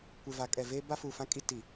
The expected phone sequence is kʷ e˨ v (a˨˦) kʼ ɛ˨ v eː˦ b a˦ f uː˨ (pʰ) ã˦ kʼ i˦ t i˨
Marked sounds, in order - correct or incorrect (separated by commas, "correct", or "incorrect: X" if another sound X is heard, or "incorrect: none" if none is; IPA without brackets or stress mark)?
correct, incorrect: f